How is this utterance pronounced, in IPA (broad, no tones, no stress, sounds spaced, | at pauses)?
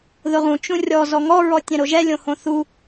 ð ʊ ʁ ũ t͡ʃ ũ rʲ ɔ z ɔ ŋ ɔ ɹ ɔ tʲ ɛ̃ ɾ o ʒ ɛ lʲ õ h õ θ u